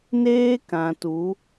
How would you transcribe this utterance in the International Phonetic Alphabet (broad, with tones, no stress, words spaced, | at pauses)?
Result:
neː˦kã˨tu˨˦